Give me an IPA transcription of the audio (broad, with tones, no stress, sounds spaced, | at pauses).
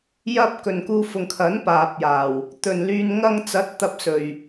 j ɐ˥ p̚ k ɵ˨ n k uː˧ f ʊ˨ ŋ kʰ ɐ˨˥ n p aː˨ p̚ j aː˨˩ w | t̪ ɵ˨ n l yː˧ n ŋ ɐ˧ ŋ t͡s ɐ˨˥ t̚ t̪ ɐ˧ p̚ s ɵ˨ ɥ